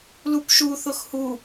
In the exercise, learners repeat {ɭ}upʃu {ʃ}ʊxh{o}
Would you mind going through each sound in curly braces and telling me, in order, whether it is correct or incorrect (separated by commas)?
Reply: incorrect, incorrect, incorrect